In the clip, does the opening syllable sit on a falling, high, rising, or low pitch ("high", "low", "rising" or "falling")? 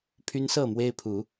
high